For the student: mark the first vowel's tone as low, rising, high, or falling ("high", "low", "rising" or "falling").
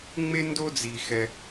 high